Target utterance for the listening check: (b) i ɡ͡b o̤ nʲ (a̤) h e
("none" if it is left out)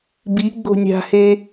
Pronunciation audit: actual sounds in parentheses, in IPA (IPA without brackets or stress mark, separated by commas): b, a̤